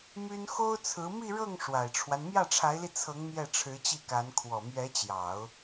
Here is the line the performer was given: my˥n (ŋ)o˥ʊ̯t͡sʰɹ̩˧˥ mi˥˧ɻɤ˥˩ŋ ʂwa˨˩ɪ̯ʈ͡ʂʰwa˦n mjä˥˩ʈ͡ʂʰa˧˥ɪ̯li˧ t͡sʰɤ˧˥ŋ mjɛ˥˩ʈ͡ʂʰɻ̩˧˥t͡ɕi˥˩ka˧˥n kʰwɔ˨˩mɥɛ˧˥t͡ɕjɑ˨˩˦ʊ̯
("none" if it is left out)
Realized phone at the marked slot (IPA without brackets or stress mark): x